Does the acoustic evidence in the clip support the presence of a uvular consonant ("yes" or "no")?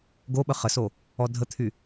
yes